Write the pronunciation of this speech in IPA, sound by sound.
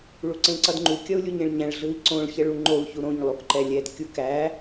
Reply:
ɭuǀẽǀʌdŋ͡ǃu kʲʌu̯lʲuɲẽɭɲæ̃ɭ ɮɯi̯ǀõɭ çɛɭuŋ͡ǃou̯ çuɾõɲ lˠukǃɛlʲɛd kʲukæ

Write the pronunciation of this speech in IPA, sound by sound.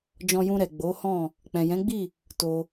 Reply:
d͡ʒɔ̃˧jũ˧ɾɛ˨ ɡ͡bo˨˦hɔ̃˦˨ | k͡pɛ̃˨jɛ̃˨˦ɡ͡bi˦˨ | to˧

